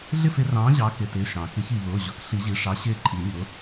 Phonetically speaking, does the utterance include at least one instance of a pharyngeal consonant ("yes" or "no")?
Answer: no